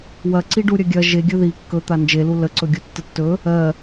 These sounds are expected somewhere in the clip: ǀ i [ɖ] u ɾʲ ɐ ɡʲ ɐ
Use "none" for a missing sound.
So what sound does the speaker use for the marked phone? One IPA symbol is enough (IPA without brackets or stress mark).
ɖ